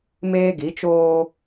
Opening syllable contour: high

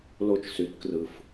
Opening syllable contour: high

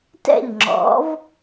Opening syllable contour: falling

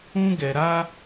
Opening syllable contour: high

